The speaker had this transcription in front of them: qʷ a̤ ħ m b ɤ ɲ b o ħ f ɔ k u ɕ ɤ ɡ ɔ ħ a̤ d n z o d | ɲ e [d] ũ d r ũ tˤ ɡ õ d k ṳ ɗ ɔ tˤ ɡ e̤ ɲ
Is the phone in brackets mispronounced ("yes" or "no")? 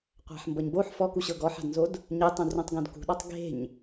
yes